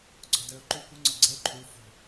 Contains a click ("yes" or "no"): yes